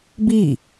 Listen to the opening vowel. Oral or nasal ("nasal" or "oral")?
oral